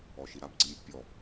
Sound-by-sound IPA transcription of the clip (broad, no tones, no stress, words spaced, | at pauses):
ɔʃiɾab ɡ͡ǀimʲɔbpʲɔ